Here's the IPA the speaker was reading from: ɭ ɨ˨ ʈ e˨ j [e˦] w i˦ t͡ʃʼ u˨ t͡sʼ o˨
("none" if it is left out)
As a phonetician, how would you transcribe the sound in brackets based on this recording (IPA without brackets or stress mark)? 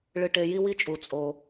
i˦